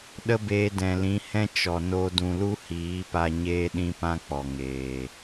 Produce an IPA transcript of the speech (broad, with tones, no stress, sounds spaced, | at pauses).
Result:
ɗ ə˦ b eː˧ d ɛ̃˨ l ĩ˨˦ h ɛ̃˦ t͡ʃ ɔ˨ n o˧ d ũ˧ l u˦ h iː˨˦ p a˧ ɲ eː˦ ɗ ĩ˦ p ã˦ k͡p ɔ˨ ŋ eː˨